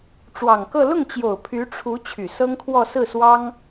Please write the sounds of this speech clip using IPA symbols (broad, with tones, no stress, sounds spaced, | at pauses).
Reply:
ʈ͡ʂ w ɑ˨˩ ŋ k ɤ˥˧ l ʊ˥˩ ŋ t͡ɕ j o˨˩ ʊ̯ pʰ y˧˥ ʈ͡ʂʰ u˧˥ t͡ɕʰ y˨˩ s ɤ˥ ŋ kʰ w ɔ˥˧ s ɹ̩˥˩ s w ɑ˥ ŋ